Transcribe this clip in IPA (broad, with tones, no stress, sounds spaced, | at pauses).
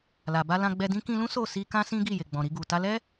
l a˨ b a˧ l ã˧ ɡ͡b ɛ˧ d ĩ˦ k ĩ˧ l ũ˦ s o˦˨ s i˧ k ã˦ s ĩ˦ ɡ i˦˨ j e˨ ɡ͡b ɔ̃˨ ɾ i˧ ɡ u˨ t a˧ l ɛ˦